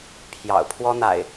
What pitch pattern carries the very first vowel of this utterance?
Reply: low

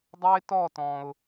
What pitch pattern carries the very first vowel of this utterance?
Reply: high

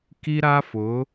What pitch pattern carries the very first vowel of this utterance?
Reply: high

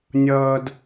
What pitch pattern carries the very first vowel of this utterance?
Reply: high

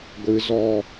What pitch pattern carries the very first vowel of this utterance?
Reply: low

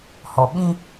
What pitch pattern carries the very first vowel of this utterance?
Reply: low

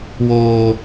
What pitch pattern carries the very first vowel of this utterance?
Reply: high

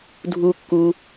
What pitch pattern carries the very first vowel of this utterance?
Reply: high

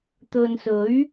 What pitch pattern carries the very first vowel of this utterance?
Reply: low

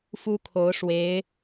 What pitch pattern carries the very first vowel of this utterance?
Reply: high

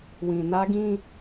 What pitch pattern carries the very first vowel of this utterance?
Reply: low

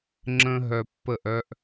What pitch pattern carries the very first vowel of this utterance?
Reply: high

